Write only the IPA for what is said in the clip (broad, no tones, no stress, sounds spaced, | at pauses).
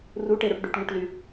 r u ʈ e ɾ o ʈ ɖ y ʈ ŋ u ʈ l y